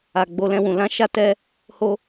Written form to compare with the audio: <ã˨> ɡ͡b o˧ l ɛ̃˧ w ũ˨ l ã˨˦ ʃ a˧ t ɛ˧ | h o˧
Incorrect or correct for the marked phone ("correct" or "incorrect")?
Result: incorrect